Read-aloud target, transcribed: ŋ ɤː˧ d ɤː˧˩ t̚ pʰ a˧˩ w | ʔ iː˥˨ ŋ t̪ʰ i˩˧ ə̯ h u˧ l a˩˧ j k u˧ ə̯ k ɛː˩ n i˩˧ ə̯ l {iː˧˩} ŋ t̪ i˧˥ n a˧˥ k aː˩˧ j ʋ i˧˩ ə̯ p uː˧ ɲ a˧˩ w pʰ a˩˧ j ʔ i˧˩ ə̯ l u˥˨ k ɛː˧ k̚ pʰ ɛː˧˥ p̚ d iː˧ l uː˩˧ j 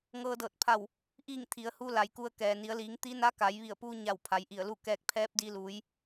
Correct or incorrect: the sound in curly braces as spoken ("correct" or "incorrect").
incorrect